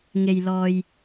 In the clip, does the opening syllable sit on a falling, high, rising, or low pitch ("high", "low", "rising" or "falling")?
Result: low